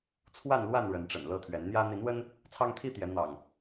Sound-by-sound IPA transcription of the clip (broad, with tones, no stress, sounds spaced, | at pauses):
t͡sʰ w a˥˨ n l w a˥˨ n ɻ ə˨˦ n ʈ͡ʂ ə̰˨˩ n l ɤ˥˨ t̪ʰ ɥ ɛ˨˦ n n̪ j ä˦ n̪ i˨˦ n w ə˦ n | t͡sʰ ɑ˦ ŋ t̪ʰ i˦ t̪ j ɛ˨˦ n̪ ɑ̰˨˩ ŋ